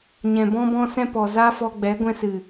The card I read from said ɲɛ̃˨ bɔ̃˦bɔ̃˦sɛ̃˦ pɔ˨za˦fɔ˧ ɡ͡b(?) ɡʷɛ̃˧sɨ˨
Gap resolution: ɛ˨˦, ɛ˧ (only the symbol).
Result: ɛ˨˦